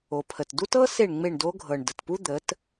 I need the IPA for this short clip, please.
o˨pʰə˨t du˦tɤ˦ se˦˨ɳŋ͡me˦˨ɳdo˦ɡʱɤ˨ɳ də˨tpu˦d̪ə˨˦t

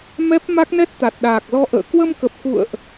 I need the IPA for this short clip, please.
mɛ˦˥p̚ ma˦˥k̚nɛ˦˥t̚ t̪a˨˩t̚ɗaː˨˩k̚lɔ˧ ʔə̰ː˧˨ kwə˧mkə˨˩p̚kṵ˧˨ə̯ʔ

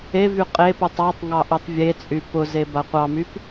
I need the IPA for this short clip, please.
evy qʼeputˤ ɑtˤ ŋɑʔytˤvʲet͡sʼy pʊze baqʷɑmyp

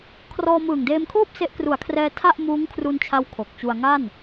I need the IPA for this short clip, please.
kʰrɔː˧mɯː˨˩ŋdeː˧mkʰoː˥˩p̚ se˦˥ʔkru˨˩a̯kʰrɛː˧ tʰa˥˩ʔ muː˦˥ŋkʰru˧nt͡ɕʰa˦˥w kʰo˨˩k̚t͡ɕu˧a̯ ŋa˥˩n

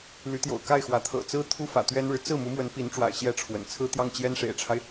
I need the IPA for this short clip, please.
ly˧˥t̪jo̰˨˩ʊ̯ka˥˩ɪ̯xwä˧˥ t̪ʰɤ̰˨˩t͡sɹ̩˥ t̪ʰu˥fä̰˨˩ t̪ɥɛ˥nɻɻ̩˨ t͡sɹ̩˥˩ mu˧˥mwə˧˥n pi˧˥nʈ͡ʂwa̰˨˩ɪ̯ ɕjɛ˥˩ ʈ͡ʂʰwə̰˨˩n t͡sʰɹ̩˥t̪jɑ˥˩ŋ t͡ɕjɛ˥nʂḛ˨˩ɪ̯ʈ͡ʂʰa˦ɪ̯

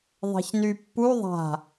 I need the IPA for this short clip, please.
ðˤɛ̤çny pːu ðˤa̤

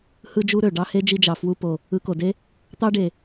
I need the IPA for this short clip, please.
hɯ˥d͡ʒu˥ɾø˩ ɖɑ˥he˥ d͡ʒi˧d͡ʒɑ˩ fwu˧po˩ | ɯ˧ko˩de˥ | t̪ɑ˥ɖe˩

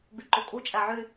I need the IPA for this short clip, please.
byǃokʼu t͡ʃʼæʕy

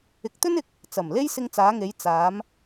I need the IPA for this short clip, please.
ɪ˨k̚t̪ɵ˥n ɪ˧k̚ | t͡sɐ˨˩mle˥j sɪ˧ŋt͡saː˨˧ŋe˨˧j t͡saː˨˧m

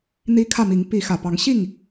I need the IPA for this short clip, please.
n̪i˦kʰä˥˨mi˨˦ŋ pi˨˦ xä˨˩pɑ˨˦ŋɕi˥˨ŋ

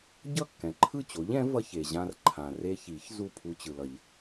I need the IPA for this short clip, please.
ɟʌ˥˩kːɛ̃˩ ǃʰɯ˥˩t͡ɕo˩˥ʎ ɛ̃˩˥ vʌ˧ç e˩ʑã˧r ǃʰã˩re˧çi˨˩˦ç zu˥˩pʰu˧ t͡ɕɯ˩lʌ˨˩˦ʎ

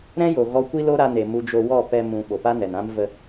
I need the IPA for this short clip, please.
ɾɛ̃˦jo˨ ɣɔ˧ kʷi˦lo˦ɾa˧ne˨ mu˧d͡ʒo˧wɔ˦˨ pɛ˧ mũ˨ ɓo˨pa˦nɛ˨nã˦m və˧

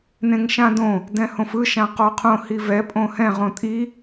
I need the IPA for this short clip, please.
nẽŋʃãdõ | dɛ̃hõfɯ ʃãqɔqʰõ hivɛ pʼõhɛ̃ʁ õtʼi

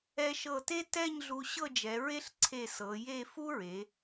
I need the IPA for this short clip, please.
ɛ˧ʃɤ˧˩te˥ tɛ˥˧ɲɮu˧ ɕɤ˥˧d͡ʒɛ˩˧ɹe˥ɬ ǀʰe˧˩ sɤ˩˧je˥˧ fu˥ɹe˩˧

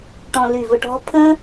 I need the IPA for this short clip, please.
ʈɔ̃˧ly˧˩vʊ˧ ʈɔ̤˧˥pʰə̃˥

